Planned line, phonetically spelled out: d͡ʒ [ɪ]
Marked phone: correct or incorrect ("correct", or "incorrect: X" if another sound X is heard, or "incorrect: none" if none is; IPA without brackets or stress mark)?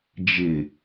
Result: correct